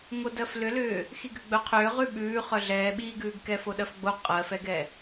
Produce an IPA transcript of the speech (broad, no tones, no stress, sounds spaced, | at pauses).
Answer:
ŋ o d ɜ f l ʏ l ʏː | x i ɡ ʏ ɡ͡b œ qʰ ʏː ʁ ʉ ɓ ʉː χ œ ɮ ɛː ɓ iː ɡ ʉː ɡ k ɛ f o ɗ ɜ f ɡ͡b o qʼ ɜ f ɛ ɡ ɛ